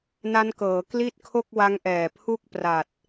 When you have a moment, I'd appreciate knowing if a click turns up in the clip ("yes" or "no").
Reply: no